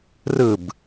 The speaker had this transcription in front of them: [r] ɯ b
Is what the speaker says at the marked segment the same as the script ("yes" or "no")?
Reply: yes